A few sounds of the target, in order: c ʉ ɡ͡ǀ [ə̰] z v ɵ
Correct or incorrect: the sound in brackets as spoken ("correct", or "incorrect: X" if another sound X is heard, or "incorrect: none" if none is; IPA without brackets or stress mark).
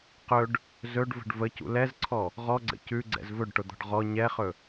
incorrect: ɛ̰